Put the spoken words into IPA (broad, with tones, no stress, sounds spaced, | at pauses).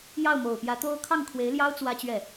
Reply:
j ɑ˥˩ ʊ̯ m o˨˩ ʊ̯ p j ä˧˥ t̪ o˥ ʊ̯ kʰ ɑ˥˩ ŋ kʰ w e˧˥ ɪ̯ l j ɑ˥ ʊ̯ t͡s w ä˥ t͡ɕ ɥ ɛ˥˩